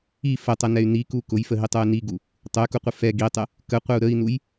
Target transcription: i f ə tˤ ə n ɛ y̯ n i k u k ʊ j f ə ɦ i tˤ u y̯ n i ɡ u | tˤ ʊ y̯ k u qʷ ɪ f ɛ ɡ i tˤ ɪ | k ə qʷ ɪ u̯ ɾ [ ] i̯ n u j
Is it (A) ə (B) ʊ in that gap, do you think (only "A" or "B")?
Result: A